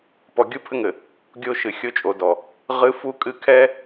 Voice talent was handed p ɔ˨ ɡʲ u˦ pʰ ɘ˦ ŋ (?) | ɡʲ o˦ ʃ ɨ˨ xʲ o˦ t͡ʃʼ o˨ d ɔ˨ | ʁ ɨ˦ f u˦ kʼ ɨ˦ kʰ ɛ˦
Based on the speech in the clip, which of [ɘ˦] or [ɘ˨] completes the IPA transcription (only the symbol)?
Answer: ɘ˨